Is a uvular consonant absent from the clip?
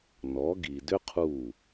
no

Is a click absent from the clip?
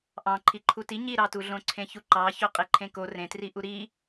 no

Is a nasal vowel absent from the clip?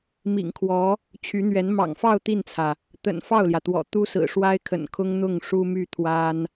yes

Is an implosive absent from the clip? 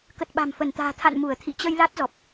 no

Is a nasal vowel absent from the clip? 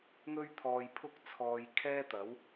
yes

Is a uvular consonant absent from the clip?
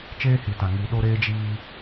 yes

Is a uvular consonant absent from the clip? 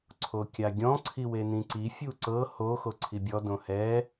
yes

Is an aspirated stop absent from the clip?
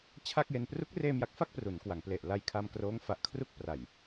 no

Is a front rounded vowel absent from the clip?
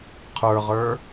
yes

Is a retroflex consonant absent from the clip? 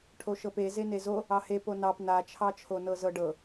no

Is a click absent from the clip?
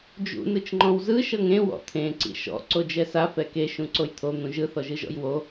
no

